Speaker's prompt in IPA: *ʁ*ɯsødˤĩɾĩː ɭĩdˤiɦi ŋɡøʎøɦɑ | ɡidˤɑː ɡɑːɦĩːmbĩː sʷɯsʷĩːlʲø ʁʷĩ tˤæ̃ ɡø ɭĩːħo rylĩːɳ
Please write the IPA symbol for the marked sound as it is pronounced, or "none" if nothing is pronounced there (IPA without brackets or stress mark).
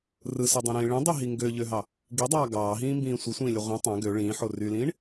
r